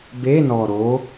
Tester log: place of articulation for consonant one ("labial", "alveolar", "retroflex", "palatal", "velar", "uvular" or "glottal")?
labial